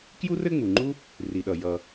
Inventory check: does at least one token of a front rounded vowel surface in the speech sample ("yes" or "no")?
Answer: no